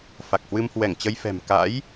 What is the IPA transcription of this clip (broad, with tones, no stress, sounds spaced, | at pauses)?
f a˨˩ k̚ h w ɨ˧ m h w ɛ˧˩ ŋ t͡ɕ ə˧ j f ɛ̤˨˩ m k a̰˧˥ j